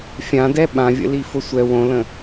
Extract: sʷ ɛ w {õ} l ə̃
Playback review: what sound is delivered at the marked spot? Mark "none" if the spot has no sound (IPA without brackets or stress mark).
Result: õ